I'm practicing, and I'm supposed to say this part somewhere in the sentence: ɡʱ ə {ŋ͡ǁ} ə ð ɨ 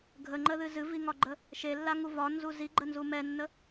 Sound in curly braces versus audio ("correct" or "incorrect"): incorrect